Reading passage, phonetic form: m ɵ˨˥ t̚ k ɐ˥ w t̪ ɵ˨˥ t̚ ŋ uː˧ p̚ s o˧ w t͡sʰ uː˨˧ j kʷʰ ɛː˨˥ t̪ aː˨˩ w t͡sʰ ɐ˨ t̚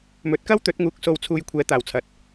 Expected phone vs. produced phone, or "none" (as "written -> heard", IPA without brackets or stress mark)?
p̚ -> k̚